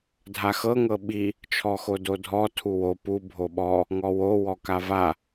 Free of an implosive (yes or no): no